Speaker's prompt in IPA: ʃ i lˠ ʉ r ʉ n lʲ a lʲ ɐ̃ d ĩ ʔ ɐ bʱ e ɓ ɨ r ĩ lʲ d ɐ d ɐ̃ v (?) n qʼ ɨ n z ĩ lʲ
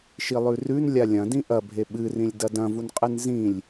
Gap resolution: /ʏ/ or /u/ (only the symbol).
u